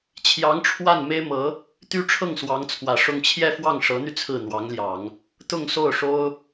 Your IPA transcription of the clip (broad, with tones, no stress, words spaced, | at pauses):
t͡ɕʰjɑ˧˥ŋʈ͡ʂʰwa˥˩n me˥ɪ̯mɤ˧˥ | t̪y˥ ʈ͡ʂʰɤ˥˩ŋswɑ˧˥ŋt͡sʰwä˨˩ ʂʊ˥˧ŋ t͡ɕʰjɛ˥˧fwɑ˥˩ŋʂɤ˧˥n̪y˧ t͡sʰɹ̩˥˩n̪wɑ˧˥ŋ ljɑ˨˩˦ŋ | t̪ʊ˥˧ŋso˥˩ʊ̯ʂo˥ʊ̯